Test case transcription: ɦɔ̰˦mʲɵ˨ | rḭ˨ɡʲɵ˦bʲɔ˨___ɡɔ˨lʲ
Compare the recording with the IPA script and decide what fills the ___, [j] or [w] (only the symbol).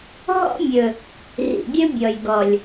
j